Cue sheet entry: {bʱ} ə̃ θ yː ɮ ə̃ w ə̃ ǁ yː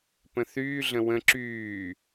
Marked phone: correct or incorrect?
incorrect